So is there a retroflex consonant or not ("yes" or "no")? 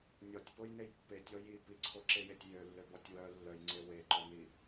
no